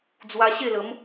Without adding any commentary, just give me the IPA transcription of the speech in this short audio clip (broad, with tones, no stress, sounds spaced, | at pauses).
d͡z w a˧ ɕ e˥˧ l ə˨˦ m